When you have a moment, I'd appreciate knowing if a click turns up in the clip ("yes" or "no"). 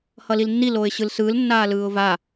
no